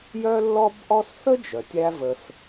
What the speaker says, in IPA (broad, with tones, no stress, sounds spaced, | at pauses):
j œ˥ lː ɔ˥ b ʔ ɔ˥ s θ ə˥ d͡ʒ œ˩ tʲ æ˥ v ə˧ s